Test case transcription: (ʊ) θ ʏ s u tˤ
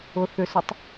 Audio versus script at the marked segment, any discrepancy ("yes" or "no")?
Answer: no